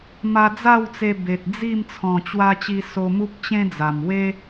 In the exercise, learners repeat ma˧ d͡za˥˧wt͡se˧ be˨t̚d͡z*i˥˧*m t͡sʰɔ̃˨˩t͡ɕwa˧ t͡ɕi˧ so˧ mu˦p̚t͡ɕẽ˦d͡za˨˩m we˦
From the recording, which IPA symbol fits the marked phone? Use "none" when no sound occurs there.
i˥˧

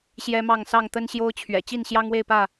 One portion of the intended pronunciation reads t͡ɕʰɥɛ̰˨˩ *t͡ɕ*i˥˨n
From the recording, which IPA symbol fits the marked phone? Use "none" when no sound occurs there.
t͡ɕ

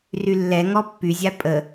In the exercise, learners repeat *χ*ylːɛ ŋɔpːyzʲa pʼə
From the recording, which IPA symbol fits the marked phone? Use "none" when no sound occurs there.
r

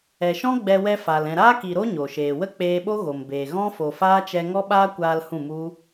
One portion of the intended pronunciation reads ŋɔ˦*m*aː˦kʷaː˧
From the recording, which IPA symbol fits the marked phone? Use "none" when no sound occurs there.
ɓ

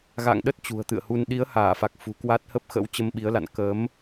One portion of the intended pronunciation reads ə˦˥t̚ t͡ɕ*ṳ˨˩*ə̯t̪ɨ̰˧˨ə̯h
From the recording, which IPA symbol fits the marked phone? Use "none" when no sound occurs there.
ṳ˨˩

